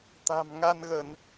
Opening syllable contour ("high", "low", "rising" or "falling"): low